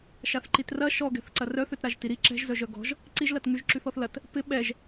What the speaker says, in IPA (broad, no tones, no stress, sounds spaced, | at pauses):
ʃ a θ ǃ i t r ɐ ʃ ɔ ɡ ɛ̤ θ ǀ ɐ r œ θ ø t ɾ a ʒ t i ɾ i ǁ ɛ̤ ʒ z œ ʒ œ ɡ ɔ̤ ʒ | ǀ i ʒ l ɐ t ŋ y ʒ ǁ y θ ɔ θ l ɐ t | p ɪ ɓ ɛ ʒ